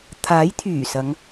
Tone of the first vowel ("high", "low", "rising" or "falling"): rising